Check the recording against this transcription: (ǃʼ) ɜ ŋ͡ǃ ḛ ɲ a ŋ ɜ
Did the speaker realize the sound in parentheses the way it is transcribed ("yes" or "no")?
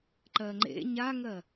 no